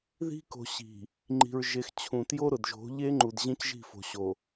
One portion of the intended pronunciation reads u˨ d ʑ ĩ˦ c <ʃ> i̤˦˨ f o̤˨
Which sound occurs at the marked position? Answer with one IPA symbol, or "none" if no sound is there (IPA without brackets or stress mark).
ʒ